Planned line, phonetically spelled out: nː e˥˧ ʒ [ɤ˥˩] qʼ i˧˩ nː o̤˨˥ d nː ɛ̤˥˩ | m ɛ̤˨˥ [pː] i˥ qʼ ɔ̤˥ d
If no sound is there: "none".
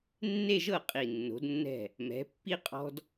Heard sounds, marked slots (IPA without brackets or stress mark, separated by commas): ɤ˥˩, pː